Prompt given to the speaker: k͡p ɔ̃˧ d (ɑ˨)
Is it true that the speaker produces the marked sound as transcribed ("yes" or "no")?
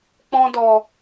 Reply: no